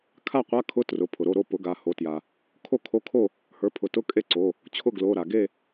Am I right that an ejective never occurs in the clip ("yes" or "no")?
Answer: no